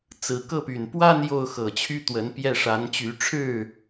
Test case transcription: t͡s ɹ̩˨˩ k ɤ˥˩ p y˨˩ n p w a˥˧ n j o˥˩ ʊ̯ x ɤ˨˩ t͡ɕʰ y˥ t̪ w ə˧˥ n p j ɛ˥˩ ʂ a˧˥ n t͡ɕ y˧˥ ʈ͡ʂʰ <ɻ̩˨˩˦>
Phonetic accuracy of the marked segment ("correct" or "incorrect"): incorrect